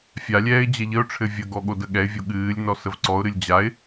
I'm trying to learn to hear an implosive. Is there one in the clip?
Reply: yes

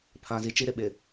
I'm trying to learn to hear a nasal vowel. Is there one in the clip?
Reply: yes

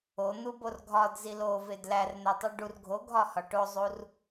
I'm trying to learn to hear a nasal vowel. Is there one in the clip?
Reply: no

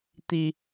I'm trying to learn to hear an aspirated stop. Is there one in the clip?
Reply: no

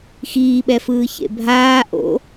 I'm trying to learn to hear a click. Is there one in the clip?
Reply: no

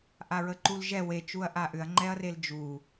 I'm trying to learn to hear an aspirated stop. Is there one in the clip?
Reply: no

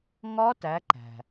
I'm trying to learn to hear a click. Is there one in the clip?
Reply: yes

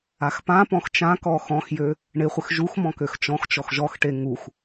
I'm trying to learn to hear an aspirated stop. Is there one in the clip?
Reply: no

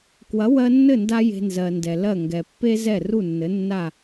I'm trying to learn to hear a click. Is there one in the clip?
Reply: no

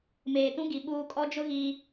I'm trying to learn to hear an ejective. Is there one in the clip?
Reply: yes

